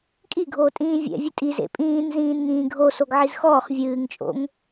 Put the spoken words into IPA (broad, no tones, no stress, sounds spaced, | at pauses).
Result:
kʼ i ɡʱ oː tʼ ĩː vʲ ɛ̰ vʲ ɨ tʼ i z ḛ pʼ ĩː n z ĩː n ŋ ĩː ɡʱ o s o ɡ ʕ i z x ɔː χ vʲ ɨː ŋ t͡ʃʼ o̰ ŋ